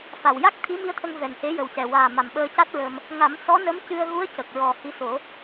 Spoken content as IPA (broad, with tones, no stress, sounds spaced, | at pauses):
f a˨˩ w j a˦˥ k̚ t̪ʰ i˧˥ m i˧˥ ə̯ t̪ʰ ə˧ ŋ v ɛ˨˩ n h e˧˥ j ə˨˩ w c ɛ˨˩ w aː˨˩ m a˨˩ m ɓ əː˧ c a˦˥ t̚ ɹ ə˧ m | ŋ a˨˩˦ m s ɔ˧˥ n ə˧˥ m c ɨ˧ ə̯ ɣ u˧˥ ə̯ c ə˨˩ k̚ ɹ ɔ˨˩ h i˧˥ s o˨˩˦